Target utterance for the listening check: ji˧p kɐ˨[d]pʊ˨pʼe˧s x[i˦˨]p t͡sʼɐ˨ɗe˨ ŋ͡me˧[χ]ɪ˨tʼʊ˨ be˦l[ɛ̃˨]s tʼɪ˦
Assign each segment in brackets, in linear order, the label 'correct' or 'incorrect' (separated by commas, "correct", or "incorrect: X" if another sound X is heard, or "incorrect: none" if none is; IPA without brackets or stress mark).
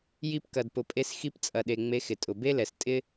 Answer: correct, incorrect: i˧, incorrect: x, incorrect: ɛ˨